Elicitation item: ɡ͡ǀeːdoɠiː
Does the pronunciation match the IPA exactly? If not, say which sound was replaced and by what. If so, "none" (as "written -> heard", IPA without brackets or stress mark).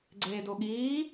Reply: none